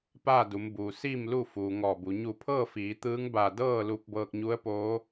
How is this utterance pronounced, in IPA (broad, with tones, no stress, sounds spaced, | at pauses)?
p aː˥˨ d u˩˧ m b uː˩ s iː˥˨ m l u˥˨ f uː˩ ŋ ɔː˧˩ b u˩˧ ɲ u˧˩ pʰ ɤː˥˨ f iː˩˧ t̪ ɯː˧˥ ŋ b aː˧˩ d ɤː˥˨ l u˧ p̚ b ɤː˧ k̚ ɲ u˧˥ ə̯ p oː˧˥